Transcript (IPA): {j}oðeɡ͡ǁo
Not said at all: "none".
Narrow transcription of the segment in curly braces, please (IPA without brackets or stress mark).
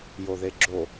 j